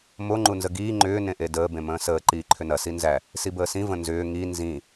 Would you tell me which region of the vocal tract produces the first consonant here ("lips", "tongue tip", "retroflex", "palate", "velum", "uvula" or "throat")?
lips